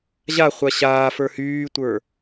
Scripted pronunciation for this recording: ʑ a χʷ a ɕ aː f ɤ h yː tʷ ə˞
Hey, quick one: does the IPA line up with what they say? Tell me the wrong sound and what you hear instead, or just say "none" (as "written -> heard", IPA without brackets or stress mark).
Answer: ɤ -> ə˞